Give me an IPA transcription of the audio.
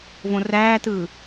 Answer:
v õ r æː t ɯː

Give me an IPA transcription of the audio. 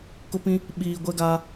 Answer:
k ʊ˦ p ĩ˦ | ɓ iː˨ ɡʷ ɛ˦ ɡ aː˦

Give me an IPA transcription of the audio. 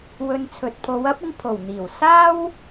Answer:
w ɵ˧ n t͡sʰ ɵ˨ t̚ pʰ o˨˧ w ɐ˥ p̚ ɪ˧ ŋ pʰ o˨˩ w n̪ iː˨˩ w s aː˥ w

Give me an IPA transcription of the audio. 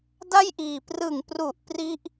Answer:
d a˥˩ j ʔ iː˨˩ p r ɯ˨˩ ŋ p r u˨˩ ʔ p r i˥˩ ʔ

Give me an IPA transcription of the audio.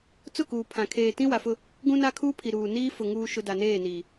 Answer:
t͡s ʊ˦˨ k uː˨ pʰ ã˨ kʰ eː˨ t ĩ˦ w a˨ f ʊ˦ | ɡ ũ˦ n a˦ kʰ uː˦ pʰ i˨ ɾ uː˨ n iː˦ f ʊ˨ ŋ uː˦ ʃ ʊ˦ d a˨ n eː˦˨ n iː˨

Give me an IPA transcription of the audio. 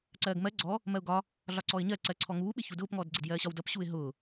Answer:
ǀ ɜː ɡ m ɜ ɡ͡ǀ ɔ | m ɜ ʊ̯ ɡ ɒ | ɮ ɒ ǀ ɔ ɪ̯ ɲ ɜ ǀ ɜ ǀʰ ɔ ŋ uː ɓ ɪ ç u d ʊː p ŋ ɔː d ɡ͡ǀ ɪ d j ɜː ɕ ɒ w d ʌ p ɕ uː ɪ̯ ɦ ʊː

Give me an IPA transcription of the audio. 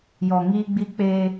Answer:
j ɔ˨ ŋ iː˦ ɡ͡b i˦ k͡p e˦

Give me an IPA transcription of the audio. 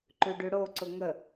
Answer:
ǃ ʉ ɖ ʉ ɽ o ǀ ʊ ŋ ə

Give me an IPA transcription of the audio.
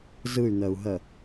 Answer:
z ɯ y̯ n̪ ɜ u̯ ɦ ɜ

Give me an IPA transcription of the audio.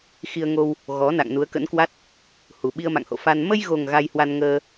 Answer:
x i˧ ə̯ ŋ o˧ w | ɣ ɔ˨˦ n a̰˧˨ ŋ n u˨˦ ə̯ k ə̰˧˥ n k w a˦˥ t̚ | h u˨˩ ɓ i˧ ə̯ m a̰˧˨ ŋ h o̰˧˨ f a˧ n m ə˧ j ɣ o˨˩ ŋ ɣ a˧ j h w a˧ n ŋ əː˧

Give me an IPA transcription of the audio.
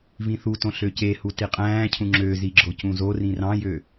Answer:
v ĩ θ u t õ ɬ ø c e h u t i qʼ æ̃ː cʰ ũ ŋ͡ǁ ø z i ɡ͡ǁ o c ũ z o r ĩ r ɑ̃ j ø

